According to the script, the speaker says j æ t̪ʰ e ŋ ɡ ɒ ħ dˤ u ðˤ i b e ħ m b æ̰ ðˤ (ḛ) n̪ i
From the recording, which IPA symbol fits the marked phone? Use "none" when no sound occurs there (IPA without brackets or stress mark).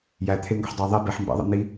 ḛ